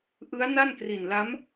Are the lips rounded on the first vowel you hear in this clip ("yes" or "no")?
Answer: no